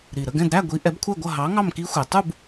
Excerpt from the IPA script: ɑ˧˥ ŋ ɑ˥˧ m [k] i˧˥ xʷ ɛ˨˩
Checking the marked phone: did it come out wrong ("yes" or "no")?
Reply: no